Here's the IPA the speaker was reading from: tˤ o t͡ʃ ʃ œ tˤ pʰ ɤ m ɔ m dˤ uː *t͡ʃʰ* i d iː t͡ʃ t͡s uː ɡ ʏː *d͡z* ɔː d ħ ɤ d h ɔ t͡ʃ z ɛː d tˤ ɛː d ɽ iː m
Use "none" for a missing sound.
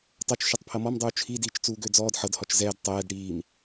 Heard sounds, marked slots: t͡ʃʰ, d͡z

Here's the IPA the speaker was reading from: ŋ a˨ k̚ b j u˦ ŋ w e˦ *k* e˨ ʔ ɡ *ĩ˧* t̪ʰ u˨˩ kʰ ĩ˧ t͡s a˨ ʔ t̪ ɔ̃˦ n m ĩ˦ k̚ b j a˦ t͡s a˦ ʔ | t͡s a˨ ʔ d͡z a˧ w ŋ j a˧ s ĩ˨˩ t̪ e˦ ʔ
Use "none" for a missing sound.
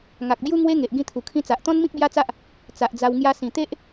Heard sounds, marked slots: ŋ, ĩ˧

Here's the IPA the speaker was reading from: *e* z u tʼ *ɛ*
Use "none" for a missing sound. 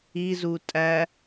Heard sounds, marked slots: i, æ

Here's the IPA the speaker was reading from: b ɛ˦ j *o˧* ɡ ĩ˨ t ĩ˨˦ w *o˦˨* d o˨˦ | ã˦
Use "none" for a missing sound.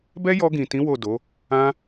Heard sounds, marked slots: ɔ˧, o˦˨

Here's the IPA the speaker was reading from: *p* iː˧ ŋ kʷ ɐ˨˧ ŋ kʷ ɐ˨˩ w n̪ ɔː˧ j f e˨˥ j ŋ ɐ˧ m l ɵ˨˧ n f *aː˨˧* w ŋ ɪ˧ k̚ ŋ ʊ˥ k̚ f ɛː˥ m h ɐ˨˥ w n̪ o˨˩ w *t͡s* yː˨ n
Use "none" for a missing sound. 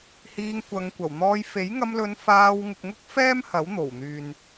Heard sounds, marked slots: h, aː˧, n̪

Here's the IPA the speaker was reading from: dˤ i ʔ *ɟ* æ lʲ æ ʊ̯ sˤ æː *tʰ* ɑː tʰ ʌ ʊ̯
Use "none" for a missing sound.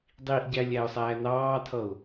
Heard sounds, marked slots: ɟ, n

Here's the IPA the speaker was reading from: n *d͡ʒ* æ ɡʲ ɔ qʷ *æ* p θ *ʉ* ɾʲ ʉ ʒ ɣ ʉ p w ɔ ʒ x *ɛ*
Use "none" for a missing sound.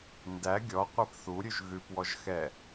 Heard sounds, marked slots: d, ɜ, u, ɛ

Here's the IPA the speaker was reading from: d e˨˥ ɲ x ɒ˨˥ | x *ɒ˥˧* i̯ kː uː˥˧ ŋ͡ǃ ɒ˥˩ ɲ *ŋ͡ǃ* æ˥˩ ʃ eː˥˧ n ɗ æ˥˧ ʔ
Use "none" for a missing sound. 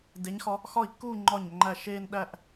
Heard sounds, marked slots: ɒ˥˩, ŋ͡ǃ

